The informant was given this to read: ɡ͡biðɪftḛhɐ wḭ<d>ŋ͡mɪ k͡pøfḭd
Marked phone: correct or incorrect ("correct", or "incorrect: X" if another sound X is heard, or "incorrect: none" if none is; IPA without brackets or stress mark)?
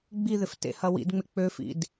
correct